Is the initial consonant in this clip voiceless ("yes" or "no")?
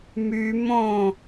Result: no